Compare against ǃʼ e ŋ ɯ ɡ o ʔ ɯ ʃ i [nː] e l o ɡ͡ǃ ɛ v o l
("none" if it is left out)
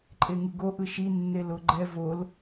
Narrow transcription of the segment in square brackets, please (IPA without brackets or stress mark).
nː